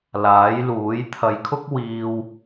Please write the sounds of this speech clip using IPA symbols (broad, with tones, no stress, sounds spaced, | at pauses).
l aː˨˥ j l uː˨˥ j t̪ʰ ɐ˨ j kʰ ʊ˥ k̚ w iː˧ w